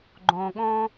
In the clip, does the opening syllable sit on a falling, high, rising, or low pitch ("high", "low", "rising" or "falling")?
low